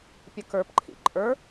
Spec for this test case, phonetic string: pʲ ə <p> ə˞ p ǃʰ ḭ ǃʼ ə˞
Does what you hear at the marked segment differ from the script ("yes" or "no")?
yes